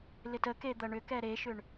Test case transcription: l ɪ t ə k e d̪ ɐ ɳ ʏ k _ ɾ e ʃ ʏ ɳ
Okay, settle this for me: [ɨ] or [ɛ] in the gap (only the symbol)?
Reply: ɛ